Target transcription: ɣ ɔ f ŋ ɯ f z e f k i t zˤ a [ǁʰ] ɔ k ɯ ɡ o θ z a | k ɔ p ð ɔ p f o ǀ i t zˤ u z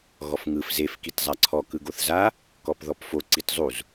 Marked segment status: incorrect: ǀʰ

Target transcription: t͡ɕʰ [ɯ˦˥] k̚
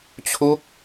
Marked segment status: incorrect: u˦˥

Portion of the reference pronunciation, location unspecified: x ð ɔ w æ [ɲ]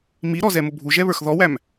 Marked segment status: incorrect: m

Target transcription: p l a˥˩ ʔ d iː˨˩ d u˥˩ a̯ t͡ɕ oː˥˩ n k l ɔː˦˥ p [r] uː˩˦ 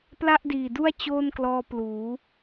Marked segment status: incorrect: l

